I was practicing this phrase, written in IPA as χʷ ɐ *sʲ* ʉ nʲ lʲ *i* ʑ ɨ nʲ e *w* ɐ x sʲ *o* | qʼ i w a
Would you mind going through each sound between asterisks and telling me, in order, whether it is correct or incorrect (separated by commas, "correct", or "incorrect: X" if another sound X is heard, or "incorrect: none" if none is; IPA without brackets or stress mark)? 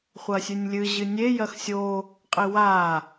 correct, incorrect: ɨ, incorrect: j, correct